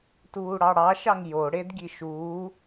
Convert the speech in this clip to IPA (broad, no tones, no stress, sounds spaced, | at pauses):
t uː ɽ ɑ ɽ ɑ ʃ ɑ ŋ j o ɽ e d ɡ i ʃ uː